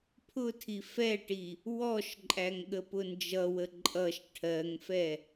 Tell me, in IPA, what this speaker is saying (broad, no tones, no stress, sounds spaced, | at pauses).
pʰ ʊ tʰ i f ɛ ʈ i | w ɔ ʃ ǃʼ æ ŋ ɠ ə p ʊ n d͡ʒ ʌ w ə ǃʼ ʌ ʃ ʈʰ ɜ ŋ f ɛ